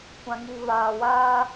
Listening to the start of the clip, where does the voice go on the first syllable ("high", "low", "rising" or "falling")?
low